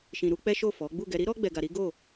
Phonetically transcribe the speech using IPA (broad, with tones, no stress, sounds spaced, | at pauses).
ʃ ĩ˧ ɾ u˦ k͡p ɛ˦ ʃ o˦˨ f ɔ˨˦ ɡ͡b u˦˨ ɡ ɛ˧ ɾ i˦ ɾ ɔ˦ ɡ͡b ɛ˧ ɡ a˧ ɾ i˦ ɡ o˦˨